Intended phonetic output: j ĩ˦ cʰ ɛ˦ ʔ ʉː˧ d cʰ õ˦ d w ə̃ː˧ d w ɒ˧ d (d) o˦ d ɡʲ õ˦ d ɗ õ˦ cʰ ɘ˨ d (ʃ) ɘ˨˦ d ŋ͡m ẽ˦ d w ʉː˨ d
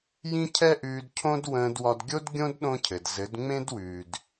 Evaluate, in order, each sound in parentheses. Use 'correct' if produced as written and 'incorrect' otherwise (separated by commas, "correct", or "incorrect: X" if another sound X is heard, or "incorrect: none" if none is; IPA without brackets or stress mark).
incorrect: ɡʲ, incorrect: z